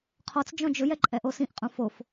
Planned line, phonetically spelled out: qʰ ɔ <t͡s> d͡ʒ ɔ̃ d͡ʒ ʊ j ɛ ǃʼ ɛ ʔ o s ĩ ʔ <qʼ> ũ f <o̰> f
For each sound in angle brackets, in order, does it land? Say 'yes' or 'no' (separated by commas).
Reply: yes, yes, no